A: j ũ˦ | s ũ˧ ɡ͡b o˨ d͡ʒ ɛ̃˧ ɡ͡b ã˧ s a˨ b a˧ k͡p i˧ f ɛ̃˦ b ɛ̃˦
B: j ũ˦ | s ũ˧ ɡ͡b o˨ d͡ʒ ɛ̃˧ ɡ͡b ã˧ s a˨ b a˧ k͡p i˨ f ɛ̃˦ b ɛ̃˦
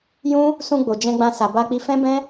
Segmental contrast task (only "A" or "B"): A